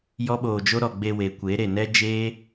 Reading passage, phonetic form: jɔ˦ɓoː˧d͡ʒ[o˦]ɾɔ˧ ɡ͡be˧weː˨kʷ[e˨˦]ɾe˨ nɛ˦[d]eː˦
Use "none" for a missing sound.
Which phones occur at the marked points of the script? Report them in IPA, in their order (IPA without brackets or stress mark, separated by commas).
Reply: o˦, e˨˦, d͡ʒ